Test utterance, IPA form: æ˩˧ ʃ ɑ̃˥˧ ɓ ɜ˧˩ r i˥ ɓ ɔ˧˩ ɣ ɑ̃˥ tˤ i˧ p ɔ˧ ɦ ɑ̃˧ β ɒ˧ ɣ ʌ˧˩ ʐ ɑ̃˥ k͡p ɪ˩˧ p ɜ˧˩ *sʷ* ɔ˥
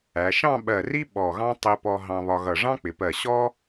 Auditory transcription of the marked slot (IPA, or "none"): ɕ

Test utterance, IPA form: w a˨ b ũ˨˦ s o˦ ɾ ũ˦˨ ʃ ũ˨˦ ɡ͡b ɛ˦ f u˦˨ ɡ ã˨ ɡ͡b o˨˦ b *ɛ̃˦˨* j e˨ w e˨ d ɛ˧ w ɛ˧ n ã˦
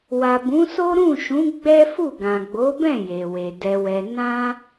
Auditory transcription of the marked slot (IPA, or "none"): ɛ̃˦˨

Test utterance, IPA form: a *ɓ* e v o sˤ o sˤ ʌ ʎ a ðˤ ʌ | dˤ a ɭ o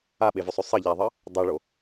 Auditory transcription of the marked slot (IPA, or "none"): ɓ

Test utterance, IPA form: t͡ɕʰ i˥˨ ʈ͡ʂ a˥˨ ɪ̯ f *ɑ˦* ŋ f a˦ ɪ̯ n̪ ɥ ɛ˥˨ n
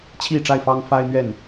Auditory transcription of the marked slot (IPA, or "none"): ɑ˦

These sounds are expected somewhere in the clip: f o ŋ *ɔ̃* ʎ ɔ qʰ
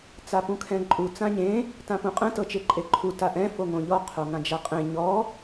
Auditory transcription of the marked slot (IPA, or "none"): õ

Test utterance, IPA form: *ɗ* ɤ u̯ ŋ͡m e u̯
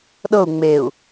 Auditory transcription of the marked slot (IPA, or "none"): ɗ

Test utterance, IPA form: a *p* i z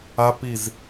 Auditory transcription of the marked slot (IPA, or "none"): p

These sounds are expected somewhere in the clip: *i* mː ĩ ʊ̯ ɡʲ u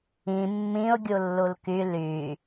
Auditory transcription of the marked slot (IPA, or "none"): ĩ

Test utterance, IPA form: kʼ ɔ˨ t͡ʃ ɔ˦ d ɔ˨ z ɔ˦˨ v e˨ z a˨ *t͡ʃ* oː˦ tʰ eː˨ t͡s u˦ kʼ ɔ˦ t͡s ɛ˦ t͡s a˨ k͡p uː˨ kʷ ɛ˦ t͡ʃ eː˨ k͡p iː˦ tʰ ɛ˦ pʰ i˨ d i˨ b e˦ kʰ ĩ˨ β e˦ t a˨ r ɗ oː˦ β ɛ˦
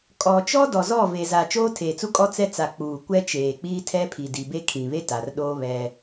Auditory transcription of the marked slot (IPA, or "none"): t͡ʃ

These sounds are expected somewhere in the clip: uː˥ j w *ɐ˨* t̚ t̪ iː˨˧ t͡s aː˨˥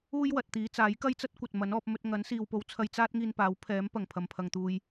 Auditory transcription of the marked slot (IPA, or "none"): ɐ˨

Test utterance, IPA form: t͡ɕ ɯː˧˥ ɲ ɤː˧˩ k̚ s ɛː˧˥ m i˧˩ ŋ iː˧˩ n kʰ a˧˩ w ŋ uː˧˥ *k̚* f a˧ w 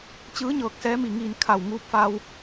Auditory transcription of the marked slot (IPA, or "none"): p̚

